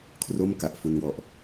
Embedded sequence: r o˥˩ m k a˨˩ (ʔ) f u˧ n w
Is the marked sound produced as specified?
yes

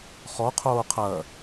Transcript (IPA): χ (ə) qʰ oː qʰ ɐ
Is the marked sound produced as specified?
no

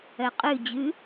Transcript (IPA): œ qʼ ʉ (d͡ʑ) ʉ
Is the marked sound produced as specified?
yes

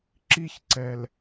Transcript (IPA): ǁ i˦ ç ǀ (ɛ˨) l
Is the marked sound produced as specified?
yes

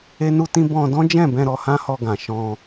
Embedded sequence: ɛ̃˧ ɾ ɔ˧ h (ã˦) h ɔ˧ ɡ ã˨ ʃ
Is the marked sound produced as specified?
yes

